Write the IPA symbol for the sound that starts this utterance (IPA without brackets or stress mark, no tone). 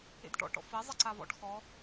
ḛ